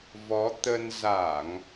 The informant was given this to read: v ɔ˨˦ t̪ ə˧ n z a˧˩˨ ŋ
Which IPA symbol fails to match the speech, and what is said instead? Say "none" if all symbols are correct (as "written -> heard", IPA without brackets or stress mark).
none